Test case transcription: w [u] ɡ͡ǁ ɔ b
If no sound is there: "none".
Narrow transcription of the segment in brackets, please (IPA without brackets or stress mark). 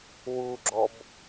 u